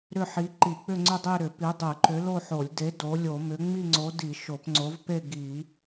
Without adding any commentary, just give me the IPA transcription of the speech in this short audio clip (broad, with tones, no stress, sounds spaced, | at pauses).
ɾ ʏ˥˧ ħ i˨˥ ǃ i˧˩˧ k͡p ʏ˥˧ ŋ͡ǀ ʏ˥˧ dˤ e˥˧ ɾ ʏ˧˩˧ p i˨˥ dˤ ɨ˧˩˧ ǃ ʏ˨˥ l o˥˧ ħ o˧˩˧ lʲ d e˨˥ d o˨˥ lʲ o˧˩˧ m ʏ˨˥ ŋ͡m i˥˧ ŋ͡ǀ o˨˥ d i˧˩˧ ʃ o˧˩˧ p ŋ͡ǀ o˨˥ v p e˥˧ ɡ i˧˩˧